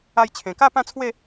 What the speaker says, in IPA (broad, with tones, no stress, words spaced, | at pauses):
a˧jt͡ɕʰẽ˨˩ka˥˧ pã˥˧t͡sʰwe˥˧